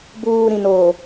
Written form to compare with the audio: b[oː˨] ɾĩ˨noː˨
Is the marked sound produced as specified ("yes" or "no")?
no